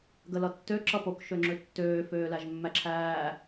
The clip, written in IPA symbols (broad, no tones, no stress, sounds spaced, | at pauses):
ɡ ə l ʌ tː ø ǁ ʌ p o k ʃ ø ŋ͡ǁ ø tː øː f øː l æ ʒ mː æ ǁʰ æː